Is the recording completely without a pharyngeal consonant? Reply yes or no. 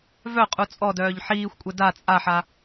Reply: no